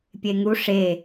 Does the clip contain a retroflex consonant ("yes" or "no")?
yes